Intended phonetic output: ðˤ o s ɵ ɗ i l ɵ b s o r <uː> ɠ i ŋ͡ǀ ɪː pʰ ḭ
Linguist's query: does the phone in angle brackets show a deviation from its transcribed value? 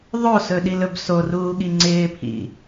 no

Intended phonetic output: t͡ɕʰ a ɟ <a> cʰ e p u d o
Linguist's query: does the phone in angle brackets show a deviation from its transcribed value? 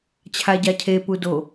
no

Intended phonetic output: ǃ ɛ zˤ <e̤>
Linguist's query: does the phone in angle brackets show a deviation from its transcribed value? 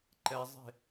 no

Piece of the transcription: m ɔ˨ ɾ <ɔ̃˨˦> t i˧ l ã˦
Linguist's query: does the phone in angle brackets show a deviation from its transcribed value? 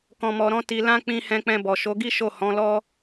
no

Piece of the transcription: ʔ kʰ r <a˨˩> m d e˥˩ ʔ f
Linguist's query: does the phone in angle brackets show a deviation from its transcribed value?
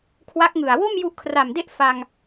no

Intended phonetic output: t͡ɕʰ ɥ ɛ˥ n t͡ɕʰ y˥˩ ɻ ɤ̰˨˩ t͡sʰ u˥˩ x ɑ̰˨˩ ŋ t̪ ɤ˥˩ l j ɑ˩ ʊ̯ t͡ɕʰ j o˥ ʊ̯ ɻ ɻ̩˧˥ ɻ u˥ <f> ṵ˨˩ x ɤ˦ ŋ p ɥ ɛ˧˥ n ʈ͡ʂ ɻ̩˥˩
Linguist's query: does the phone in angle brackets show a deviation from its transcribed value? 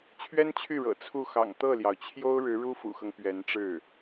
no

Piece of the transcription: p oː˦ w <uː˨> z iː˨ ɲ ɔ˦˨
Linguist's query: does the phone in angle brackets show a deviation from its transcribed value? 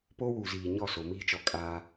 no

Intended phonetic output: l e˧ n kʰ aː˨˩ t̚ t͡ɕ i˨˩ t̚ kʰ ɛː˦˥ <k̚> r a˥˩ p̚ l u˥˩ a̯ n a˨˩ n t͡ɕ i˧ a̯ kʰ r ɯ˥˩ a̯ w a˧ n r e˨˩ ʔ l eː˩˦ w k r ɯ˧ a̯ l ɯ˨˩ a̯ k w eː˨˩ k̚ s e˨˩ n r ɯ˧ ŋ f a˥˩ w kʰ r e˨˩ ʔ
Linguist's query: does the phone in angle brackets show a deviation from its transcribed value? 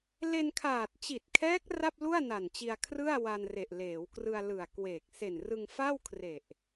no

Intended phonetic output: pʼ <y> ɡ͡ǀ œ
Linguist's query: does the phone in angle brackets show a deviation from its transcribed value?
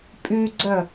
no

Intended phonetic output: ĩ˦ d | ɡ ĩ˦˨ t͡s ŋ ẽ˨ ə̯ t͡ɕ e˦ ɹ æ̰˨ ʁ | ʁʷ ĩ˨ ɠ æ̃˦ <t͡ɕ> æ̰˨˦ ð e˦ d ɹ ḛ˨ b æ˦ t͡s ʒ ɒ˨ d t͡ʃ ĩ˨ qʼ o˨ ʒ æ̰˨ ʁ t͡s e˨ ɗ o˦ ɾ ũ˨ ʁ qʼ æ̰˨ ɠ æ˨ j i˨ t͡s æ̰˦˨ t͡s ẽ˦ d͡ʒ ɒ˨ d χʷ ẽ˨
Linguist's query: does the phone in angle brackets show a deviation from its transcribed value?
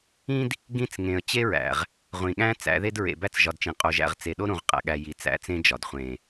yes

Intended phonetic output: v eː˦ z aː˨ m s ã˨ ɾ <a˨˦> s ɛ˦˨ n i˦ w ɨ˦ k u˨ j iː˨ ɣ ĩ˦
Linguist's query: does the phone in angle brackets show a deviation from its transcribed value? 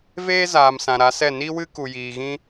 no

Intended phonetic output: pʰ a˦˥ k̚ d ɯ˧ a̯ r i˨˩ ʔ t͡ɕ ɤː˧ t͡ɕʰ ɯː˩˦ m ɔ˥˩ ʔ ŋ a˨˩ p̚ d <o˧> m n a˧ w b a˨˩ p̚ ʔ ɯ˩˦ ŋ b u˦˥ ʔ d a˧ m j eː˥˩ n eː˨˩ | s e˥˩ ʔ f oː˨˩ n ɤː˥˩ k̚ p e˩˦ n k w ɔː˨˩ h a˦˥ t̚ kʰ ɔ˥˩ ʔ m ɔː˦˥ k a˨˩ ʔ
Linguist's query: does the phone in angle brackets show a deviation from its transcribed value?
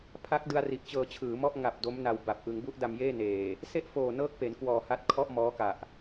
yes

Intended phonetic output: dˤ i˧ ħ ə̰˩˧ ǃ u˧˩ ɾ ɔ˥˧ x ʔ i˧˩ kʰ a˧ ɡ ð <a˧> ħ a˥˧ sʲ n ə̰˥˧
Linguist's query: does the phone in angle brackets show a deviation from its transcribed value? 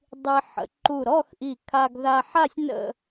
no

